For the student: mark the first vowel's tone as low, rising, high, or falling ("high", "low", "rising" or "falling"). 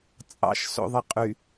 low